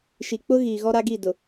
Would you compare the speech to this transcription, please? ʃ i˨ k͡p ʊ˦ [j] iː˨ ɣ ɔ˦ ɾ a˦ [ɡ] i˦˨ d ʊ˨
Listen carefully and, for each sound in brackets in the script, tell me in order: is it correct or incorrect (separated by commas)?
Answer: incorrect, correct